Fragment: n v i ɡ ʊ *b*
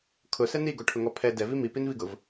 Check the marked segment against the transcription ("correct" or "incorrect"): incorrect